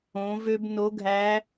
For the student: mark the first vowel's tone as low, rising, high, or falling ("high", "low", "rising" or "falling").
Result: rising